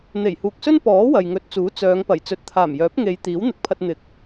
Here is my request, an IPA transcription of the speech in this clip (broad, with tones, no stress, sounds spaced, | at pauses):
n̪ e˨˩ j h uː˨ k̚ s ɵ˥ n p ɔː˨˥ w ɐ˨ j ŋ ɵ˨˥ t̚ t͡s uː˨˥ t͡s œː˨˧ ŋ p ɐ˨˩ j t͡s ɵ˨˥ t̚ t̪ʰ aː˨˩ m j œː˨˥ p̚ ŋ e˨˧ j t̪ iː˨˥ w n̪ ɪ˨˥ k̚ pʰ ɐ˧ t̚ n̪ ɪ˨˥ k̚